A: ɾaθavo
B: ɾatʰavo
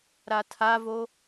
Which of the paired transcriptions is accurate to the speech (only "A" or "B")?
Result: B